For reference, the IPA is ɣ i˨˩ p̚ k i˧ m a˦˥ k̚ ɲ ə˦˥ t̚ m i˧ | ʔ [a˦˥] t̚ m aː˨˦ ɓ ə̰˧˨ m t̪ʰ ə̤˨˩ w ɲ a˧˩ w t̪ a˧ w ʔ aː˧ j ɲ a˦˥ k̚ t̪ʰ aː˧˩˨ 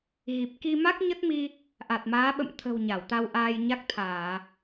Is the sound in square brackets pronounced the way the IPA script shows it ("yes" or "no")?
no